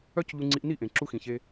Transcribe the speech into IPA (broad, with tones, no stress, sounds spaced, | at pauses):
œ˦ c ʎ u˧ ŋ͡ǀ i˧ ʔ n i˦˨ ʔ ẽ˨ ǁ u˧ x ĩ˨ ç e˧